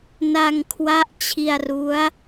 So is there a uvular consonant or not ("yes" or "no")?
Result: no